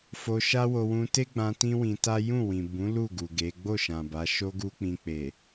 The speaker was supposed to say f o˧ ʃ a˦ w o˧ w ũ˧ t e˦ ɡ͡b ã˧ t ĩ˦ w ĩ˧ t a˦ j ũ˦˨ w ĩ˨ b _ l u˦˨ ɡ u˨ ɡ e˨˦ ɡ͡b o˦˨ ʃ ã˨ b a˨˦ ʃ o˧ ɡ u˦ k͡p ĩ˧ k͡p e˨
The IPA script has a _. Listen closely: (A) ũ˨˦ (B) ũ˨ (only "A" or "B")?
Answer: A